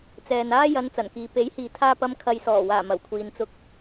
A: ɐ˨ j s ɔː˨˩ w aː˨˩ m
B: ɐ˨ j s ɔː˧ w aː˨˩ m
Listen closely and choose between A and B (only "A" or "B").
A